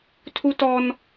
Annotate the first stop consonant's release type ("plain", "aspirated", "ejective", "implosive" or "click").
aspirated